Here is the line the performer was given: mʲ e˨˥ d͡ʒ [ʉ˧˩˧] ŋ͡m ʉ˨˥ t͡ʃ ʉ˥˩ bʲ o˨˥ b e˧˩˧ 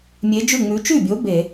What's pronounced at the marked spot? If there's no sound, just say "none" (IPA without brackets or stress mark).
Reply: ʉ˥˩